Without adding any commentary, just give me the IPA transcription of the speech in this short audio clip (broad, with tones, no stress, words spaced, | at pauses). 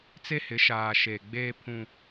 t͡se˦hɪ˨˦ʃaː˨ ʃeː˨ɡ͡beː˦pʰũ˦